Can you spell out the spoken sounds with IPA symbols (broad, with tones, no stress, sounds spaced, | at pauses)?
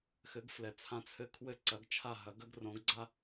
x ɘ˩˥ ɡ f l ɛ˩ t͡sʰ ã˧ t͡sʰ ɘ˧ kʰ w ɘ˥˩ ǀ ɐ˩˥ ɡ t͡ʃʰ a˥˩ ɦ ɐ˩˥ ɡ ɐ˥ ɡ r õ˩˥ ɡ ɡ͡ǀ a˥